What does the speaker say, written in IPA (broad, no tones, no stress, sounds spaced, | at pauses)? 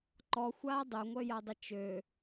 ǃ ɔ xʷ aː dˤ œ ŋʷ œ j a dˤ ə t͡ʃ ø